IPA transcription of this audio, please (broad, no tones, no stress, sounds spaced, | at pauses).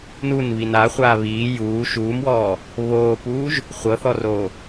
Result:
n u n β i n a χʷ aː β iː j uː ʃ uː m w ɔː | β oː p uː ʒ | χʷ ɤ θ ɔ r oː